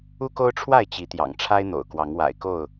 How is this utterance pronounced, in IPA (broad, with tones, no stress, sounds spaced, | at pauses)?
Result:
u˦ k o˦ ʊ̯ ʈ͡ʂʰ w a˥˨ ɪ̯ t͡ɕ i˨˦ t̪ j ɑ̰˨˩ ŋ ʈ͡ʂʰ a˦ ɪ̯ n̪ o̰˨˩ ʊ̯ k w ɑ˨˦ ŋ w a̰˨˩ ɪ̯ k o˥˨ ʊ̯